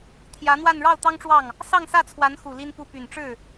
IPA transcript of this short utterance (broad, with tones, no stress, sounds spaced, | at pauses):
t̪ʰ j ä˧˥ n̪ w a˥˧ n ɻ ɑ˥˩ ʊ̯ t̪ ɑ˥ ŋ ʈ͡ʂ w ɑ˥˩ ŋ | s ɑ˥˧ ŋ s ä˥˩ t͡sʰ w a˧˥ n x u˨˩ l i˥ n p u˥˩ p y˨˩ n ʈ͡ʂ ɻ̩˥˩